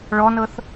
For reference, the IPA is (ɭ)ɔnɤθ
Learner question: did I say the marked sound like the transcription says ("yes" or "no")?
yes